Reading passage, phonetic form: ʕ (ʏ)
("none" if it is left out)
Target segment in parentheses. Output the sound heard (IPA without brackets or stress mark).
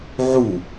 u